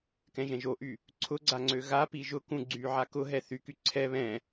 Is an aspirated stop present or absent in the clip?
present